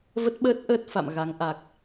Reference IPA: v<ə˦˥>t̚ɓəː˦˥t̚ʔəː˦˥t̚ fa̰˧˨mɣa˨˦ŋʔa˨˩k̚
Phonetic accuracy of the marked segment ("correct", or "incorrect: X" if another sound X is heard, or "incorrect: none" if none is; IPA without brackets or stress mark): correct